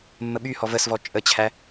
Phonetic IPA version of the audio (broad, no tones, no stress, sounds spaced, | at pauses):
mː ə ɓ y h ɔ v ə s v ɔ t͡ʃʼ ə t͡ɕʰ æ